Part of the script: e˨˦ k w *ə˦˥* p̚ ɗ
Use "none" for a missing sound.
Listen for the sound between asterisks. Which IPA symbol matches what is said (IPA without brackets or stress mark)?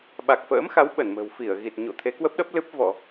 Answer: ə˦˥